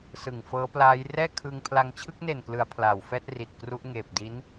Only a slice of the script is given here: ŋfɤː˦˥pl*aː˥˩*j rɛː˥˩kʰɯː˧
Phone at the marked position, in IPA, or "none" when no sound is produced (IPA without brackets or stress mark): aː˦˥